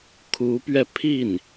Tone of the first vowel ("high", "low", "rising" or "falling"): rising